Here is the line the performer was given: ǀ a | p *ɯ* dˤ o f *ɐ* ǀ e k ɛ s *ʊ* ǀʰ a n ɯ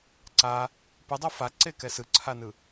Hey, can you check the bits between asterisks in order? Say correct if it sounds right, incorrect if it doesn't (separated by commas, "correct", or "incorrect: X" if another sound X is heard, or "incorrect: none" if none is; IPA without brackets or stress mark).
correct, incorrect: a, incorrect: ɯ